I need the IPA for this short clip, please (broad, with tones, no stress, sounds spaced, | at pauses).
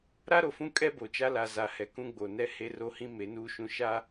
ɾ a˦ ɾ o˨ f ũ˦ kʼ ɛ˦ b o˨ t͡ʃ a˦ l a˨ z a˨ h ɛ˨ k ũ˦ ɡ͡b o˨ n ɛ˦ h e˦ r o˦ h ĩ˦ m e˨˦ n uː˦ ʃ ũ˦ ʃ a˦